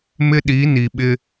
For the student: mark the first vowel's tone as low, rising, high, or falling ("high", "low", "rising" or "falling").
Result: high